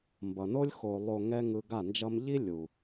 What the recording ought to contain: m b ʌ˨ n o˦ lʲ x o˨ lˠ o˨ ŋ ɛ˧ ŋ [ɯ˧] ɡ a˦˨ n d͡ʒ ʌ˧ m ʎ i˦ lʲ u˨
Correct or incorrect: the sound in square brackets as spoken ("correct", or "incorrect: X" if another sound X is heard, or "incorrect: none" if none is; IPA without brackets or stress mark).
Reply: correct